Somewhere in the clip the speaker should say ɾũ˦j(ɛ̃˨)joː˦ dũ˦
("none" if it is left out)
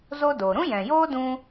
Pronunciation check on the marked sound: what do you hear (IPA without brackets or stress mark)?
ɛ̃˨